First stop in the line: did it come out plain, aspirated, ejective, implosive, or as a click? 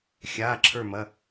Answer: click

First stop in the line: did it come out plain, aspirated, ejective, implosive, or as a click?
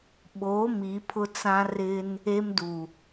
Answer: implosive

